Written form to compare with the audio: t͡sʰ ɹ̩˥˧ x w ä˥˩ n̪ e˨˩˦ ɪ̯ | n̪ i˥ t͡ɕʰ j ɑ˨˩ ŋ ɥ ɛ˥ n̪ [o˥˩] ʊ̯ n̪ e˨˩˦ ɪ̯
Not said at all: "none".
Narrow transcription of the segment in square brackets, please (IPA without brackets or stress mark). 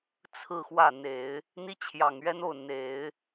o˥˩